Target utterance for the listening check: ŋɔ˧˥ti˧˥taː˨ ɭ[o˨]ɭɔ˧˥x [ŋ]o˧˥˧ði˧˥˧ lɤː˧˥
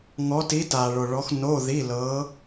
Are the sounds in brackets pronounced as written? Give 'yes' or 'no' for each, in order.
yes, no

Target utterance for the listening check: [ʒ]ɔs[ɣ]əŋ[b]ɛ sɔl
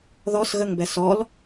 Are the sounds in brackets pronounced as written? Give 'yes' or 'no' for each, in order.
no, yes, yes

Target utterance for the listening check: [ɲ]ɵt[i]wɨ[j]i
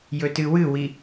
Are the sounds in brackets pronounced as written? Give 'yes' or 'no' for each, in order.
no, no, no

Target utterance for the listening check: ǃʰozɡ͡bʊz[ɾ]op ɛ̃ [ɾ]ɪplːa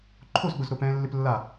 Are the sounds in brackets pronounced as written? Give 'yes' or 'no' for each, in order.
yes, no

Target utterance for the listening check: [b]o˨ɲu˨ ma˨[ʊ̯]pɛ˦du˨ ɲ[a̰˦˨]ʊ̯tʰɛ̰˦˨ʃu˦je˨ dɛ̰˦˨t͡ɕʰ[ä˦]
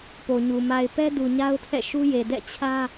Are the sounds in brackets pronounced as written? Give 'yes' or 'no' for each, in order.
no, no, no, yes

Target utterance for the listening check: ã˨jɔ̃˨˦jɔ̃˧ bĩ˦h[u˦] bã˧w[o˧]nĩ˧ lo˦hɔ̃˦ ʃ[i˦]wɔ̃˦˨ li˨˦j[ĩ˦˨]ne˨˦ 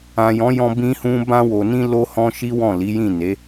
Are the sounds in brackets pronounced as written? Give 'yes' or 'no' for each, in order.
no, no, yes, yes

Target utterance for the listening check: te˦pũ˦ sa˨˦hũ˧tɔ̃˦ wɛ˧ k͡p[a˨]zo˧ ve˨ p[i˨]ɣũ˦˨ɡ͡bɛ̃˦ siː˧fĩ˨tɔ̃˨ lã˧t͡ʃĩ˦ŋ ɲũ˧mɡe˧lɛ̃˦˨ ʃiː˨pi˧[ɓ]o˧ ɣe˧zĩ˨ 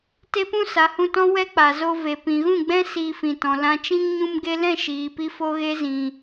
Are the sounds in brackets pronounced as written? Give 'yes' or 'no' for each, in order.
yes, no, no

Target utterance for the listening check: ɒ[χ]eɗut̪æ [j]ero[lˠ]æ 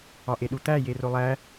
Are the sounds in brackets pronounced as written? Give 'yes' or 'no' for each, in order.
no, yes, yes

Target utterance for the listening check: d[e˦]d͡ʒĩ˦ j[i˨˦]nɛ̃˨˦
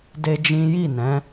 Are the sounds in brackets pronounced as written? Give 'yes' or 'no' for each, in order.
yes, no

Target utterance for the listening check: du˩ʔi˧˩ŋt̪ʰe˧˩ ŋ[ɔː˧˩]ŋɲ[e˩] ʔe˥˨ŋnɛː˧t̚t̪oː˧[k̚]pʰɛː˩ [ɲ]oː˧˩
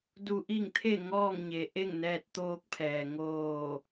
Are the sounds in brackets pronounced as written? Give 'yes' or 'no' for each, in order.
no, yes, yes, no

